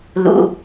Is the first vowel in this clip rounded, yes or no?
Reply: yes